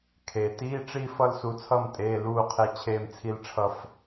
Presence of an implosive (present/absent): absent